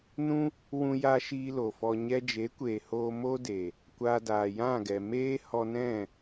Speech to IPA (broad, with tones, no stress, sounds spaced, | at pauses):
n ũ˦ | w ũ˧ j a˧ ʃ iː˧ l o˨ f ɔ˧ ɲ ɛ˦ d͡ʒ e˨˦ kʷ eː˨ h oː˧ m o˦ d e˨ | kʷ aː˧ d aː˨ j ã˦˨ ɡ ɛ˨ m eː˦ h ɔ˧ n ɛ̃˦˨